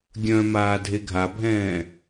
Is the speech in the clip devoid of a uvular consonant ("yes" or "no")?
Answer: yes